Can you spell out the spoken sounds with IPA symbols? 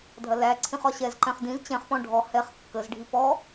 dʱ ɐ l æ ǀʰ ĩ χ ɒ ɕ ɛ z ǃ ɛ̃ χ d ĩ z t͡ɕ ɛ̃ χ p ɔ̃ ɖʱ ɔ h ɛ χ kː ə z ɖʱ i p ɔ

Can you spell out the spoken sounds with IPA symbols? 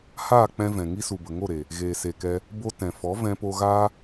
h aː˦˨ k͡p ɛ̃˦ v ɛ̃˨ ŋ i˧ s u˨ b ə˨ ŋ o˦˨ ɾ e˨ | ɣ eː˨ s e˨ k ɛ˧ | b o˧ t ɛ̃˨ f ɔ˨˦ v ɛ̃˧ p o˧ ɣ aː˦

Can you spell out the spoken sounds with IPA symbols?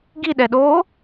ɡ i ɗ ɛ ɗ oː

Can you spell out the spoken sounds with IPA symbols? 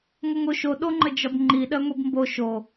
ŋʷ ə ŋ o ʃ o ɗ o ŋ͡ǃ ə d͡ʒ ɒ b ŋ͡ǃ i ɗ ɜ ŋʷ i b m b o ʃ o

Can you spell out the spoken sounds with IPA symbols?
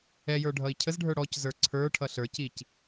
ɛ j ə˞ ɖʱ ʌ i̯ cʰ ə z ɖʱ ə˞ ɽ ɔ c z ə˞ ǀʰ ə˞ ʈʰ ʌ ɬ ə˞ c i c

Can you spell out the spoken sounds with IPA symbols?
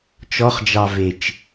t͡ʃ ɔ χ d͡ʒ ɑ v e t͡ʃ

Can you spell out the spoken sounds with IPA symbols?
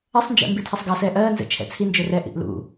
ʌ sˤ n d͡ʒ ɛ̰ m b i tʰ ʌ sˤ ɡ ɑ s ɛː ʔ ɜː n z ɛ̰ t͡ʃʰ ɛ̰ t͡sʰ i n d͡ʒ ɵ r ɛ ʔ ḭ ʔ l ṵ

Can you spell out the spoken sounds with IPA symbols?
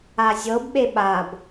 a zʲ ɤ b ɓ e ɓ a b

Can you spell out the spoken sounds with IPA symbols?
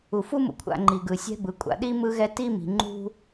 u˩ f u˥ m ṵ˨ kʷʰ a̰˨ ŋ͡ǃ i˩ ɡ ɯ˩ sʲ ɛ̤˦ b ɯ˩ kʷʼ a̰˨ ɗ i˥ m ɯ˦ ɣ ɛ˦ t i˥ m i̤˨ ŋ͡ǃ ṳ˥

